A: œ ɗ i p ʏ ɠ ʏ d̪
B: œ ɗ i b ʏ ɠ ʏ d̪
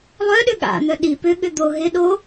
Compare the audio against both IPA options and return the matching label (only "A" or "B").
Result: A